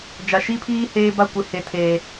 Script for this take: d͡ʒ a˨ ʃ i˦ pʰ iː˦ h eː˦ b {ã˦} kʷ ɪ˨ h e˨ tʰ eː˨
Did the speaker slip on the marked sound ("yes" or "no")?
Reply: yes